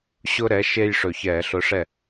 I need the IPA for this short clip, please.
ɕ ʊ˦ ɾ ɛ˨˥ ʃ e˦ j ʂ ɵ˨˩ ç ɛː˧˩˧ ɬ ʊ˨˥ ʂ ɛ˥˩

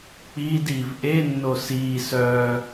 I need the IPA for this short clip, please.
k͡p iː d iː v ʔ e nː o s iː s œː

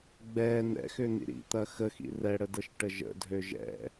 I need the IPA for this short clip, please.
ɡ͡b ɛ n ɛ̰ x ʏ n̪ ḭ ɾ ḭ t̪ ɐ x ə x ḭ r ɛ ɽ ə d ɤ ʃ ʈ ə ʒ ə̰ dʱ ø ʒ ɛ̰

